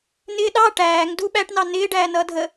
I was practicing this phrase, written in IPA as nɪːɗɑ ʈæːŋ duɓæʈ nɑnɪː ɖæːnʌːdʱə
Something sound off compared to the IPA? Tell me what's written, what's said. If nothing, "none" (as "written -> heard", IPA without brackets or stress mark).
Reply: none